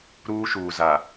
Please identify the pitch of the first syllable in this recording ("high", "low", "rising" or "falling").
high